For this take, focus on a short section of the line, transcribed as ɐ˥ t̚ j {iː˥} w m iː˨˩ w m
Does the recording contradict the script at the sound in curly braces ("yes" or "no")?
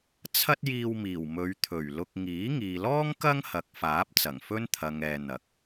yes